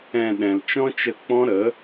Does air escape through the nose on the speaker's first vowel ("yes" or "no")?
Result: yes